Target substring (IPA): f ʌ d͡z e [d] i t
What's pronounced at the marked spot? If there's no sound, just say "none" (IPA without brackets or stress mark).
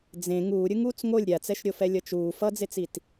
t͡s